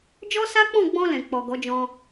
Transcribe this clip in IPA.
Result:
d͡ʒ ɔ˦ s a˦ k͡p ɔ̃˦˨ ɡ͡b ɔ̃˧ l ɛ̃˨ k͡p ɔ˨ ɡ ɔ˨˦ d͡ʒ ɔ̃˧

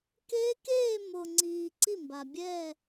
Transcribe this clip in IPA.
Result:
k eː˦˥ k eː˥˧ m o˨ ŋ͡ǀ iː˨ ǀ i˥˩ m b a˨ bʲ ɛː˥˧

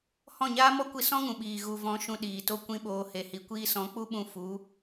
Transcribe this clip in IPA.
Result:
h ɔ̃˦˨ ɲ aː˦ m ɔ˦ kʷ i˧ s ɔ̃˦ ŋ ũ˨ ɓ iː˨ ɣ u˨ v ɔ̃˨˦ ʃ ũ˧ ɗ iː˨ t o˦ kʷ ĩ˦ ɓ oː˧ h e˨ h i˨ kʷ iː˧ s ɔ̃˨˦ k͡p u˦ ɓ ũ˧ f u˨˦

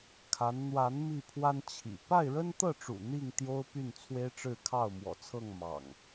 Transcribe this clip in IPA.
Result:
kʰ a˨˦ n n̪ w a˨˦ n m i˥˨ pʰ w a˦ n t͡ɕʰ ḭ˨˩ p a˥˨ ɪ̯ ɻ ə˦ n t̪ ɤ˥˨ ʈ͡ʂ ṵ˨˩ n̪ i˥˨ ŋ t̪ j o˦ ʊ̯ p y˥˨ n t͡sʰ w e˦ ɪ̯ ʈ͡ʂ ɻ̩˥˨ kʰ ɑ˥˨ ʊ̯ m w ɔ̰˨˩ t͡sʰ ɤ˥˨ ŋ m ɑ̰˨˩ ŋ

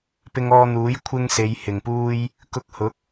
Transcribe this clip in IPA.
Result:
p ɪ˧ ŋ ɔː˧ n̪ uː˨˥ j kʷʰ ɪ˥ ŋ s e˨˧ j h ɪ˨˩ ŋ p uː˥ j | k ʊ˧ k̚ h ʊ˨˥ k̚

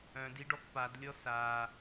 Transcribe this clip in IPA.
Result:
œ̃ d i ɖ ɔ k p a d lʲ ɔ s a

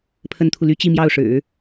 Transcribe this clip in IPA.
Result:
pʰ ə˥ n t̪ʰ u˨ l y˥ t͡ɕ i˥˧ m j ɑ˥˩ ʊ̯ ʂ ɻ̩˨˩˦

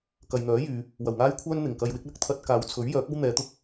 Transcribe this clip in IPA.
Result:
k ɐ˨ j n̪ œː˨˥ j yː˨˧ | w ɐ˨˩ w ŋ aː˥ j kʷʰ œː˥ n n̪ ɪ˨˩ ŋ k ɐ˧ j w ɪ˨˥ k̚ l ɐ˥ k̚ t̪ʰ ɐ˧ t̚ k aː˨˧ w t͡sʰ ɵ˨˥ ɥ j œː˨˥ k̚ ɐ˥ w n̪ ɛː˨˧ t̪ ʊ˥ k̚

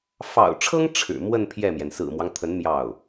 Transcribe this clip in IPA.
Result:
f ɑ̰˨˩ ʊ̯ ʈ͡ʂʰ ɤ˥ ŋ ʈ͡ʂʰ ɻ̩˨˩ m w ə˥˧ n pʰ j ɛ˥˩ m j ɛ˩ n s ɹ̩˨˩ m w ɑ˦ ŋ t̪ʰ ə˧˥ n m j ɑ˥˩ ʊ̯

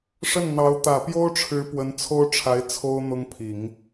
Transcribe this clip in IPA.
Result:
ʂ ə˥˩ n n̪ ɑ˧˥ ʊ̯ t̪ ä˨˩ p j o˥ ʊ̯ ʈ͡ʂʰ ɻ̩˧˥ p w ə˧˥ n t͡sʰ o˥ ʊ̯ ʈ͡ʂʰ a˧˥ ɪ̯ t͡sʰ o˥ ʊ̯ n̪ ʊ˥ ŋ pʰ i˨˩˦ ŋ

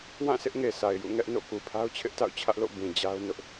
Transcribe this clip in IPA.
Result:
w ã˦˨ s ɪ˦ ʔ ŋ e˨ s a˨ ɪ̯ j ṵ˦˨ ŋ ɛ˦ ʔ n o̰˦˨ k u˨ pʰ a˦ ʊ̯ t͡ɕʰ ɪ˦ ʔ t a̰˦˨ ʊ̯ t͡ɕʰ ä˦ ʔ l o̰˦˨ b ĩ˨ d͡ʑ a˦ ʊ̯ n ʊ˦ ʔ

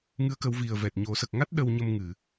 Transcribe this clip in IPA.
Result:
ŋ ɨ˧˥ ə̯ k ə˨˩˦ w v i˨˩ ə̯ v ɛ˨˩ t̚ ɲ o˨˩˦ s ə˨˩ k̚ ŋ a˦˥ t̚ ɗ ə˧ w ɲ ə˧ m ŋ ɨ˨˩˨

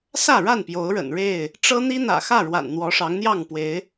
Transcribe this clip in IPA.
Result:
s ä˥˨ ɻ a˥˨ n p j o˨˦ ʊ̯ ɻ ə̰˨˩ n ɻ e˥˨ ɪ̯ | ʈ͡ʂ ɤ˦ n̪ i˦ n̪ ä̰˨˩ x ä˥˨ ɻ w a̰˨˩ n n̪ w ɔ˨˦ ʂ ɑ˨˦ ŋ n̪ j ɑ˥˨ ŋ p w e˨˦ ɪ̯

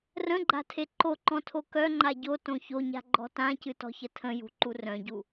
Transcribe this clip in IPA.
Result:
r ə̃ ɡ͡ǃ a̤ tʰ e ǃ o ǃ ɔ̃ tʰ o k œ ŋ͡ǃ a ɟ o t õ ç o ɲ a̤ ɡ͡ǃ ɔ̤ t ã c ɨ t ɔ̤ ç ə tʰ ə̃ j ṳ ǃ u r œ̃ ɟ u

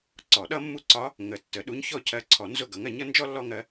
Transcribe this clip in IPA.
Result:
ǀ ɔ˨˩˦ ɗ ʌ˥ mː u˥˨ ǀ ɒ˧˥ | ŋ ə˨˩˦ tː ə˨˩˦ ɗ u˧˥ ɲ ç ɔ˥˨ cʰ ɜ˧˥ ǀʰ ɔ˨˩˦ n z ʊ˥˨ ɡ ʌ˩˥ ŋ ɜ˩˥ ɲ ʌ˩˥ n d͡ʒ ɔ˥ lː ɔ˥ ŋ ɜ˧˥

